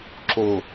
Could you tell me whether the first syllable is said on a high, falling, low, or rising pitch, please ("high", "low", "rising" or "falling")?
low